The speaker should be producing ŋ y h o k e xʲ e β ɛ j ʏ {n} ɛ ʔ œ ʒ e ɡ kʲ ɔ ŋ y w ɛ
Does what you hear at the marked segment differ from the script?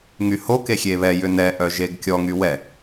no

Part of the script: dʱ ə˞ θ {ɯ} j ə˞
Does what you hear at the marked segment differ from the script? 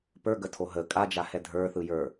no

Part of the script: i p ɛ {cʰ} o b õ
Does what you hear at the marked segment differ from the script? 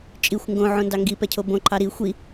no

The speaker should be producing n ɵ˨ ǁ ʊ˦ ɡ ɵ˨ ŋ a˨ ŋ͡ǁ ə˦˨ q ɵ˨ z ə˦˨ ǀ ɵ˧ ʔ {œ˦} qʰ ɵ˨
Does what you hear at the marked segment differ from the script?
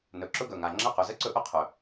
yes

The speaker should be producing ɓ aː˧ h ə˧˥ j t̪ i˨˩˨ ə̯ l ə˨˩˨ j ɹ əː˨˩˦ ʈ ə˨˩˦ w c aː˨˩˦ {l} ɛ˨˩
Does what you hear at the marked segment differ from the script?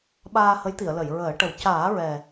yes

